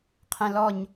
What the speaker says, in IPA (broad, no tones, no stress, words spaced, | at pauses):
qʰɛ̃lɔɲ